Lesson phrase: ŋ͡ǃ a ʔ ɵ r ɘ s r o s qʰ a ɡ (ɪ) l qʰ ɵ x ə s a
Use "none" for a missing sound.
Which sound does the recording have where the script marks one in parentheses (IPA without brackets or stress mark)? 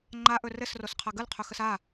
ə